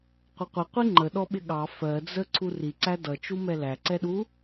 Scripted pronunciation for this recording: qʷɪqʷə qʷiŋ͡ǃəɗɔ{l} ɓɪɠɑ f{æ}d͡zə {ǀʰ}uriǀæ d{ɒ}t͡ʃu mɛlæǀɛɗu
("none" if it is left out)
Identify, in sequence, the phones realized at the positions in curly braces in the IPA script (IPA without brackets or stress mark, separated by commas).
none, ɜ, ǀʰ, ʌ